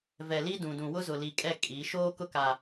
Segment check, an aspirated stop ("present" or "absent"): absent